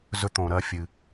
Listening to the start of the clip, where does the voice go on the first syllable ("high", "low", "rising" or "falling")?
high